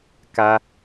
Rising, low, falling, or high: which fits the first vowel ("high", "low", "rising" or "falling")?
high